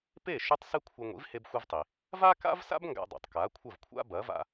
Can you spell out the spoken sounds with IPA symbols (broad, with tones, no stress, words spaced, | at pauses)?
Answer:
pe˥˩ ʃʉ˥tˤsɨ˥kʷʰɨ˧ ŋʷḭ˩˥vhe˧bxʷɨ˧vtˤi˩ | va˥ka̰˥vsa̰˥b ŋɡa̰˧dˤo̰˩tˤ ka˩˥kʷʰɐ˥˩vkʷʰa̰˥ bɐ˩˥va̰˧